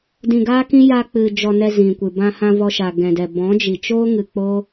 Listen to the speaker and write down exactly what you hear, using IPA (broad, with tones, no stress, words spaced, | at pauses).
dĩ˧ɡaː˦kĩ˦ ja˧k͡pɨ˨ d͡ʒɔ˧nɛ˧ zĩ˨kʷɨ˨ bã˧hã˧ vɔ˧ʃa˨ɡɛ̃˨dɛ˨ bɔ̃˨˦d͡ʒi˨t͡ʃoː˦ ŋɨ˧k͡po˦